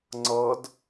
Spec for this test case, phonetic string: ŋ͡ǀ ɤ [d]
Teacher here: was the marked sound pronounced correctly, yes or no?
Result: yes